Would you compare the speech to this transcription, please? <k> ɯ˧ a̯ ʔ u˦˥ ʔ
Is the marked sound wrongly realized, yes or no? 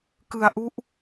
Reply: no